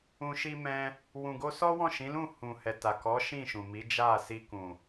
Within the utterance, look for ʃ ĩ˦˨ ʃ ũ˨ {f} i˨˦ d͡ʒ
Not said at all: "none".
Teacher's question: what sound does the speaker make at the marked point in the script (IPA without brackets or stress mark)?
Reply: m